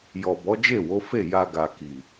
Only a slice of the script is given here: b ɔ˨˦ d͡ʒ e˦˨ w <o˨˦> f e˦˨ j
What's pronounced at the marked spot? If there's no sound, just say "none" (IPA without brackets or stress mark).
o˨˦